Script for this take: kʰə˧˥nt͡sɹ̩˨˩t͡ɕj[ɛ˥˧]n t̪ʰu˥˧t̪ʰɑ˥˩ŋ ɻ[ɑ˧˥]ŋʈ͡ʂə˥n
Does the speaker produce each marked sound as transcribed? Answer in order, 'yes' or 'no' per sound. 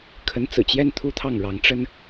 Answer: yes, yes

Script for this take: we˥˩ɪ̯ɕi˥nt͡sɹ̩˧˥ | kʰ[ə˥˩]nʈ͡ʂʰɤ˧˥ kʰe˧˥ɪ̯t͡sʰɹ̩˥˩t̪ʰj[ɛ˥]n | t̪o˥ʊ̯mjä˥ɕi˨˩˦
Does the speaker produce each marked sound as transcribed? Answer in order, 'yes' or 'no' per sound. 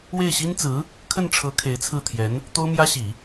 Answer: yes, no

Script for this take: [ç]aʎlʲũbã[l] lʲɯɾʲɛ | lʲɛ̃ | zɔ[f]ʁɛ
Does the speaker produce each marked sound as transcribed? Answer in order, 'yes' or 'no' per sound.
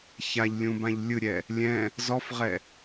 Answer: yes, no, yes

